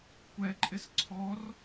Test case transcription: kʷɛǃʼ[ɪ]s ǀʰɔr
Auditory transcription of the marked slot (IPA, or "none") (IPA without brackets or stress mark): ɪ